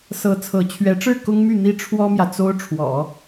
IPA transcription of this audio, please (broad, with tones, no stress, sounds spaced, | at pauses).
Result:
s ɤ˧˥ t͡sʰ ɤ˧˥ t͡ɕʰ ɥ ɛ˧˥ ʈ͡ʂ ɻ̩˥˩ k ʊ˥ ŋ m y˥˩ n̪ i˥ ʈ͡ʂʰ w ɔ˥ m j ä˨ t͡s o˥ ʊ̯ ʈ͡ʂʰ w ɔ̰˨˩˦